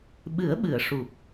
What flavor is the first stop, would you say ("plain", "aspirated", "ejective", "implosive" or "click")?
implosive